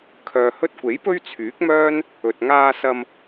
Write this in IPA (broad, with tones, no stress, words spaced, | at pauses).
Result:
kʰœː˨hɵ˧t̚kʷe˨˥j pɵ˥ɥt͡sʰyː˨˥k̚mœː˥n | ɵ˨t̚ŋaː˧sɐ˧m